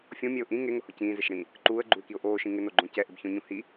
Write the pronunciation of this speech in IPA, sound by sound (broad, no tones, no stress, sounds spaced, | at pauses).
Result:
fʲ õ mʲ ɛ ʊ̯ ʔ ĩ ŋ e ŋ ʊ h ʊ c ĩː z ɪ ʃ ɽ ĩː | ǃ uː ə̯ ɡ͡ǃ u ɪ̯ k i ʊ̯ ʔ oː ʃ ĩ ŋ ɪ n o ɡ͡ǃ õ c ɛ ʔ ɪ b ç õ ɲ ũ h i